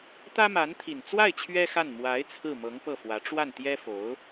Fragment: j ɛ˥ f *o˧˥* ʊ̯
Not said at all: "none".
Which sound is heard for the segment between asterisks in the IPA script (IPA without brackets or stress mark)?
o˧˥